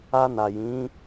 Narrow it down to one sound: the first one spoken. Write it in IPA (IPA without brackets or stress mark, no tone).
a